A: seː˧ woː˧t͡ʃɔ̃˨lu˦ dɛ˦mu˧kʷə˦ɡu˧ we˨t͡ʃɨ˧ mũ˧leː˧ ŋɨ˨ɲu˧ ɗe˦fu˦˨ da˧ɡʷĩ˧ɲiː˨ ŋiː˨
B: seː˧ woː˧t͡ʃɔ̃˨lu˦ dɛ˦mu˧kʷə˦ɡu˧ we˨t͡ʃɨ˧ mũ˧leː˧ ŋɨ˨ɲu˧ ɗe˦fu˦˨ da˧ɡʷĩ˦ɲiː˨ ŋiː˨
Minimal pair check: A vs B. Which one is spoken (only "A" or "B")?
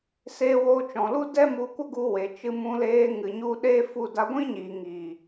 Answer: B